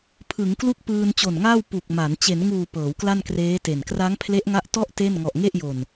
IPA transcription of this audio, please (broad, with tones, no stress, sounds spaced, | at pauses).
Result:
pʰ ɯ˩˦ ŋ k l u˥˩ k̚ p ɯː˧ n t͡ɕ o˨˩ n ŋ aː˥˩ w p u˨˩ k̚ m a˩˦ n t͡ɕ e˩˦ n ŋ uː˨˩ p ɤː˩˦ w k l a˥˩ n k r eː˦˥ t e˨˩ n k r a˦˥ ŋ pʰ l e˦˥ ʔ ŋ a˦˥ ʔ t ɔ˥˩ ʔ t e˥˩ n ŋ ɔ˨˩ ʔ ŋ e˥˩ ʔ j o˨˩ n